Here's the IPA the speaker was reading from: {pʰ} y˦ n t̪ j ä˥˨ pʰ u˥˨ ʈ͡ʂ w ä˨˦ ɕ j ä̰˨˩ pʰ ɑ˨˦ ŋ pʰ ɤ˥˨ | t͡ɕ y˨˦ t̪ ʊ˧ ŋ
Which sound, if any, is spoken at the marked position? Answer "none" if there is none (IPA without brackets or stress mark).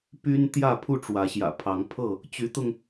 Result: p